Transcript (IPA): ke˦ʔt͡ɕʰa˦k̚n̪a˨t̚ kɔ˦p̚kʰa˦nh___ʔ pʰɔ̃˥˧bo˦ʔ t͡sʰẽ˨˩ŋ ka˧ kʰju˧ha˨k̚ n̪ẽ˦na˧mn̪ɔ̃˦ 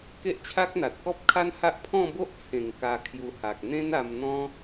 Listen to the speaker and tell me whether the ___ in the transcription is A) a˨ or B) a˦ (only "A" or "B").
B